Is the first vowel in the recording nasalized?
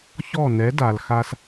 no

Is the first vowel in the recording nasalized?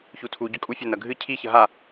no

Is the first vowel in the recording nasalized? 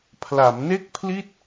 no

